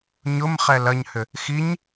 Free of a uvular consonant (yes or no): no